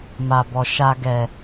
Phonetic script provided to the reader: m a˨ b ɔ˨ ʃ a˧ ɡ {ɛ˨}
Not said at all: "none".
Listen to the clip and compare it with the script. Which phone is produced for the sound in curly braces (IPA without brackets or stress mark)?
ɛ˨